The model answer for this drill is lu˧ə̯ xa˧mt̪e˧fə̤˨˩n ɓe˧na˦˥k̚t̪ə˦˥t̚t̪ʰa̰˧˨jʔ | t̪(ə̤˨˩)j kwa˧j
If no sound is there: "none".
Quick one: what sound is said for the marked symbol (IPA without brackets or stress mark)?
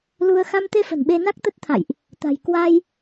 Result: a̤˨˩